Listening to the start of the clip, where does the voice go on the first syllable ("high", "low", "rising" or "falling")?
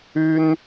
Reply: high